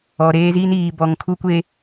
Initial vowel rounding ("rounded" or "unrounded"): rounded